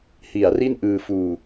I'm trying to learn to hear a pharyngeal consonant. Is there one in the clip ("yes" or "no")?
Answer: no